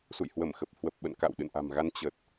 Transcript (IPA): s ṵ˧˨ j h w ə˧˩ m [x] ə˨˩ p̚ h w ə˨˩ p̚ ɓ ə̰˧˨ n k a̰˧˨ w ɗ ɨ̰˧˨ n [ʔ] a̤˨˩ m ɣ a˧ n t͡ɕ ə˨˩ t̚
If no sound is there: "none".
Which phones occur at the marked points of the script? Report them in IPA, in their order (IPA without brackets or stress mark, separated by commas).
x, ʔ